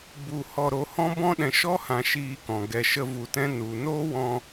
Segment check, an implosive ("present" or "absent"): present